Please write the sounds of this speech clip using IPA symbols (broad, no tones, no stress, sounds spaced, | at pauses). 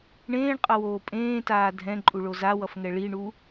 ɳ ẽː ɳ qʼ ʌ w oː pʼ ẽː t aː dʱ ɛ̃ ǃʼ u ɭ o z a w ʌ f ŋ ɛ ɭ i ɳ u